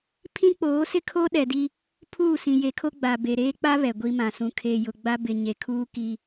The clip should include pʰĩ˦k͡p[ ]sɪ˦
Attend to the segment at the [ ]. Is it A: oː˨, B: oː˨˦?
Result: B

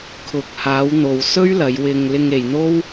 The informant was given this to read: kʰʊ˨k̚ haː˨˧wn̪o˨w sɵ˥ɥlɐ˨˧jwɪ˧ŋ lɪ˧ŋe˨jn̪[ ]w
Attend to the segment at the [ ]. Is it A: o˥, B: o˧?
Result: A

